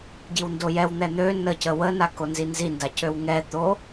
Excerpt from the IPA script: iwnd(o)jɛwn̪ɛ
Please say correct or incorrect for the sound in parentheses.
correct